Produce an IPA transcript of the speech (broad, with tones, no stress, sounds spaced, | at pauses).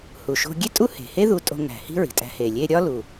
h u˩ ʃ o̤˧ ɡʲ e˥ tʼ u˥ h e̤˩ h e˥ ð u˧ tʼ o̤˧ ŋ æ̤˩ h i̤˥ ɹ i̤˩ tʼ æ̤˧ h e˩ lʲ e˧ ɾʲ ɒ˥ l u˩